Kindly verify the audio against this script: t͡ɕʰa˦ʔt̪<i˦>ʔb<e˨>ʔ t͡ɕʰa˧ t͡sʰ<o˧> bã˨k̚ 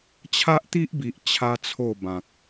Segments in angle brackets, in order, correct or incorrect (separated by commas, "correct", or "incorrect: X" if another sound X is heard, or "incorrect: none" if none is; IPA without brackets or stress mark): correct, incorrect: i˨, incorrect: o˥˧